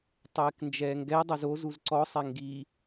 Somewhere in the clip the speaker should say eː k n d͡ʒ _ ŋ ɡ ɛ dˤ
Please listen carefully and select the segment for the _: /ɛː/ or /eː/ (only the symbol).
ɛː